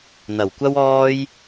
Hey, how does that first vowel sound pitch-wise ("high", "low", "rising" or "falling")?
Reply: low